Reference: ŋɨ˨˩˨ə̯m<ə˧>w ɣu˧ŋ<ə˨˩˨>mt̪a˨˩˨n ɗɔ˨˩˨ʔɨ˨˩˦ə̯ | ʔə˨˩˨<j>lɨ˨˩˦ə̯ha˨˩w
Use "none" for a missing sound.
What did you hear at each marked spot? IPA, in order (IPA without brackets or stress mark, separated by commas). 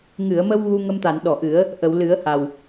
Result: ə˧, ə˧, w